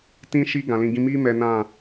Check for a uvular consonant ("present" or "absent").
absent